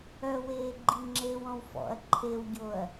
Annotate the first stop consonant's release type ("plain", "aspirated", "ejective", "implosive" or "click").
click